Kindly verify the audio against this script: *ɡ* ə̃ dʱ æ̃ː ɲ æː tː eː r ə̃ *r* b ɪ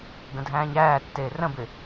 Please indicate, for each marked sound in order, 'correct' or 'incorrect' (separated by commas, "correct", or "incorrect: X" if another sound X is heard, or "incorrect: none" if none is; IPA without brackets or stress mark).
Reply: correct, incorrect: none